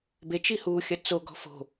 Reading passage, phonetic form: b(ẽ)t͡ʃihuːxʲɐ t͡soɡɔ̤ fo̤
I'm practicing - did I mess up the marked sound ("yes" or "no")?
yes